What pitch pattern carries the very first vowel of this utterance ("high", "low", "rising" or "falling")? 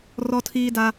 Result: high